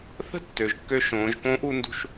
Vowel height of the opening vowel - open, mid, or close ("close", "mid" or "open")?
mid